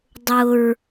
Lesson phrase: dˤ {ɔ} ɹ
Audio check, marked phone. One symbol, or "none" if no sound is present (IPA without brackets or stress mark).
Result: ʊ